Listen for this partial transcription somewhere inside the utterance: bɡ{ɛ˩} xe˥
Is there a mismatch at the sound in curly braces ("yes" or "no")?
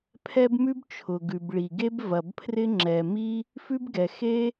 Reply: no